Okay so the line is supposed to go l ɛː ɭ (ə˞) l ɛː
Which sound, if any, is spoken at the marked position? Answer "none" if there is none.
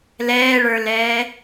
ə˞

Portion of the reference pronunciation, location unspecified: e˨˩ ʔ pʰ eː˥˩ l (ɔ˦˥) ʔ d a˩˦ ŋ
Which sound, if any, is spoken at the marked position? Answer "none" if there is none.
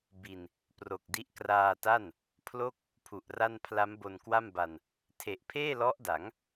ɔ˦˥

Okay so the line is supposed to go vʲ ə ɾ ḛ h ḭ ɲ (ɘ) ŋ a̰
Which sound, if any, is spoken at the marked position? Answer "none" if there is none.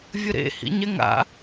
ɛ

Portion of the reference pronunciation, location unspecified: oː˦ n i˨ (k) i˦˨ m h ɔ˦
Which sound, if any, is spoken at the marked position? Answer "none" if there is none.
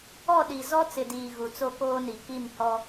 k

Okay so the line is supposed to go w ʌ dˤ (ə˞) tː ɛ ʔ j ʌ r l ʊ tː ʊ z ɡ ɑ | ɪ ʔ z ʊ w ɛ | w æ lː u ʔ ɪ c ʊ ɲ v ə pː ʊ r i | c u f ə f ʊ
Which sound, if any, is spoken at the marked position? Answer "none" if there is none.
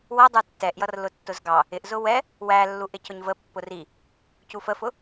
ə˞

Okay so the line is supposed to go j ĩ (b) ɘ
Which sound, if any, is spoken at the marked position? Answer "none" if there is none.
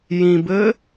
b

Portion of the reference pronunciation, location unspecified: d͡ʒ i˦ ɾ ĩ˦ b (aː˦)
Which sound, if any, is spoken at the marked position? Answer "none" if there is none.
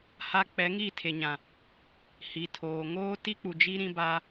aː˦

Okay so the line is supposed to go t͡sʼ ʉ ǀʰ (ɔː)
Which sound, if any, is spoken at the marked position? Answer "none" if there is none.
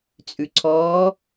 ɔː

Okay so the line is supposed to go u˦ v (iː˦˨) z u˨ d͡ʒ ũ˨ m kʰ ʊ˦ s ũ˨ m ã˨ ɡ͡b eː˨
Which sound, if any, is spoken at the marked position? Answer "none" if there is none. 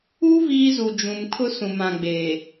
iː˦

